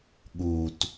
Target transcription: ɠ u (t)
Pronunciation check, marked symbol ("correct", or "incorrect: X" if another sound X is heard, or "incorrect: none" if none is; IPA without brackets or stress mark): correct